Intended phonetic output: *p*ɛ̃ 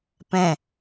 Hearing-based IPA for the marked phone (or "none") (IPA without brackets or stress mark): p